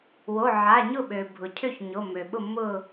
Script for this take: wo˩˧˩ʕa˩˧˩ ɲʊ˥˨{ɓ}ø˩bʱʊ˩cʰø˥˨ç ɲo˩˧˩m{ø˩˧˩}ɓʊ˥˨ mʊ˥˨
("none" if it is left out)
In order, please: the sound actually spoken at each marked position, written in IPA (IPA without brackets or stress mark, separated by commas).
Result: ɓ, ø˩